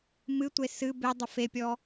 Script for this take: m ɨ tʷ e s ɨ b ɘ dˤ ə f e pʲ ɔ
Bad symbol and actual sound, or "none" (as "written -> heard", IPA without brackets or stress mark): ɘ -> e